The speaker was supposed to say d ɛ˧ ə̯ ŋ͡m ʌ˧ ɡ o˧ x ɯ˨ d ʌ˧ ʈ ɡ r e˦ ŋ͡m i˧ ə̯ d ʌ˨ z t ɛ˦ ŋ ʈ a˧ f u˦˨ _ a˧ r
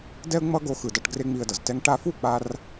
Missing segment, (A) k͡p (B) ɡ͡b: A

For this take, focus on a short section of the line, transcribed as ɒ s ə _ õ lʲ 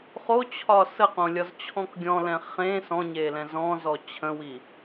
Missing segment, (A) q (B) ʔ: A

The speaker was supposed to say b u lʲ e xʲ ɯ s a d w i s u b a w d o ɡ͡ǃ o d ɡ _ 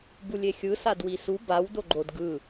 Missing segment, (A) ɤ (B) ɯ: B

